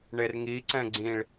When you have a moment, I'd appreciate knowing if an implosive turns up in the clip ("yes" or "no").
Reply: no